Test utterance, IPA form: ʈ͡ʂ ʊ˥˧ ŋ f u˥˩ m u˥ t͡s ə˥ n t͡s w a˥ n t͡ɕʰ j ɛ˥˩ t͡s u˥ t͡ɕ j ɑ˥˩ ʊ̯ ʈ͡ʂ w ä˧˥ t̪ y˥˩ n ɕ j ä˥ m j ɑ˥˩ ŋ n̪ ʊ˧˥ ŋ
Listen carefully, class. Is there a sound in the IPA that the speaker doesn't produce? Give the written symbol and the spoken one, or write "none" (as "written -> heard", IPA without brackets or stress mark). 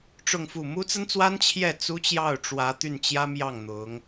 ɕ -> t͡ɕ